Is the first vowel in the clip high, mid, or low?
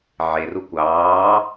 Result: mid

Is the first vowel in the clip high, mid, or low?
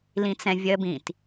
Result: high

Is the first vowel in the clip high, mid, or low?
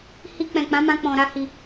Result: high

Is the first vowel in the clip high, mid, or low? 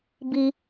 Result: high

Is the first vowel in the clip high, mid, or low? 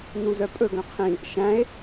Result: high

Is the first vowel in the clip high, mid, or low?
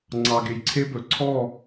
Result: low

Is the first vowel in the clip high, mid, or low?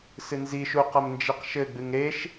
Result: high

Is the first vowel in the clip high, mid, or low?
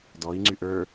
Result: mid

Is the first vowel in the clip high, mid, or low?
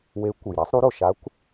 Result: mid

